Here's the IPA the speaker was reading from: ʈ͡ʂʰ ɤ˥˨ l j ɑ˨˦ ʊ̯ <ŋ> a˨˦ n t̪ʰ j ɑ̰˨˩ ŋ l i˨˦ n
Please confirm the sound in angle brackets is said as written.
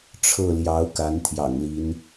no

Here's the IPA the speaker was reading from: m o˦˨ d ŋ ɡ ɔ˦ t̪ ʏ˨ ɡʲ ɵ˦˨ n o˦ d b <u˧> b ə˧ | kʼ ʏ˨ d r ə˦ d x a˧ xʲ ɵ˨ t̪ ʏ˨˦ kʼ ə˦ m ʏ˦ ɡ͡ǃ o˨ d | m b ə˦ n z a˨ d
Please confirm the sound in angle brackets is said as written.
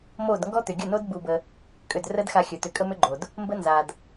yes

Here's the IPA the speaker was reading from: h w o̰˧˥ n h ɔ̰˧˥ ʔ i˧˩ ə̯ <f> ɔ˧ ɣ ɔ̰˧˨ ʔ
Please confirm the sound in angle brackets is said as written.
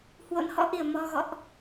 no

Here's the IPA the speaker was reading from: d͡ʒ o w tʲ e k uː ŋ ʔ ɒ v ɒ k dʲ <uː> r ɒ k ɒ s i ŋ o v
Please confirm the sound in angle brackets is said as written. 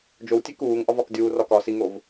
yes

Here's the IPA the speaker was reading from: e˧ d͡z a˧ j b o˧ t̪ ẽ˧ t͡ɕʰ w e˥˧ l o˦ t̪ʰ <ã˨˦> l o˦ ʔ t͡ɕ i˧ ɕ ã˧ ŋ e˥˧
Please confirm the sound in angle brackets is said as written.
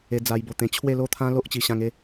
no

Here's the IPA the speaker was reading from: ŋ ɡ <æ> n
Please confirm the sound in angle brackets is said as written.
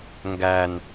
yes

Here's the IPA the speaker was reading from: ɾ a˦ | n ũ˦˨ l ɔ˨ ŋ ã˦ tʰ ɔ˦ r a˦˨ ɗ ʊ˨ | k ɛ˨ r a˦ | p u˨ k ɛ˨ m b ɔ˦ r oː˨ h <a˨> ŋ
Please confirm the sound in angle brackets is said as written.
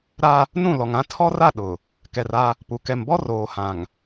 no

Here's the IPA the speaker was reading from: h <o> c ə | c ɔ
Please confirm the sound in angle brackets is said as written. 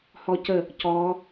no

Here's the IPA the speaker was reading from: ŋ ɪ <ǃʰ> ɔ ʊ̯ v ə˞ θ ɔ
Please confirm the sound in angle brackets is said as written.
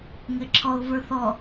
no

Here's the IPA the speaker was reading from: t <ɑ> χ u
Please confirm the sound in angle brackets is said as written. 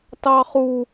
yes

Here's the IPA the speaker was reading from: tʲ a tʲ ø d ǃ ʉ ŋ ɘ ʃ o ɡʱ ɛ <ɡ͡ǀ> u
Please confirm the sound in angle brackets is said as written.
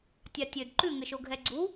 yes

